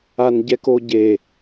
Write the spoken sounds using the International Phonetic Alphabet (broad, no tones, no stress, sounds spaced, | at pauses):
a n ɟ ɛ k o ɟ e